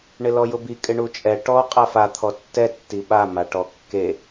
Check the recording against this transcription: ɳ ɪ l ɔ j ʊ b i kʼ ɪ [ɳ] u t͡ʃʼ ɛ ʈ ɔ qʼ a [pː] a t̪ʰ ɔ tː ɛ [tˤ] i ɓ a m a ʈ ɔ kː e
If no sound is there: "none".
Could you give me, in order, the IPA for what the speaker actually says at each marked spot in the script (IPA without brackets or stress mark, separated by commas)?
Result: ɳ, f, tː